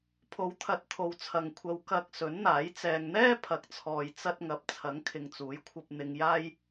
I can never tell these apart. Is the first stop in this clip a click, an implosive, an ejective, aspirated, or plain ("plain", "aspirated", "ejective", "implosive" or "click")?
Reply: aspirated